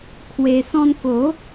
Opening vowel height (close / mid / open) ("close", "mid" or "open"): mid